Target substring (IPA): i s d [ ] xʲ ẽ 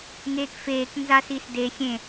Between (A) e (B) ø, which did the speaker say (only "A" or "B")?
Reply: A